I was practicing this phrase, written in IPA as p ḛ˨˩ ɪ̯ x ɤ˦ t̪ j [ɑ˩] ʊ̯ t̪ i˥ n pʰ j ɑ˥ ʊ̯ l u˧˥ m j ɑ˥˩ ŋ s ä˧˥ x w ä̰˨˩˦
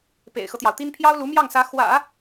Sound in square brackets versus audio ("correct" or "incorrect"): correct